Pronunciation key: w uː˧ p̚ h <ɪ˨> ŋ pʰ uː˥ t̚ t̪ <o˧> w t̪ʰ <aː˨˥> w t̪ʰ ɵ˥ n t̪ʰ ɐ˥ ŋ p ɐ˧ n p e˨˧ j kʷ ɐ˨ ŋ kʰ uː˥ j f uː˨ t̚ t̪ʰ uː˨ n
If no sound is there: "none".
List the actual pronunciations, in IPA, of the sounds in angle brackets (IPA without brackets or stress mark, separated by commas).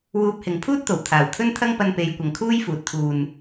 ɪ˨, o˨˩, aː˨˩